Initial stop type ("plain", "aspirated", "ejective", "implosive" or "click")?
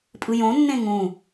ejective